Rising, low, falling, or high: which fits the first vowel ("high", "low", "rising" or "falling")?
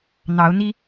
rising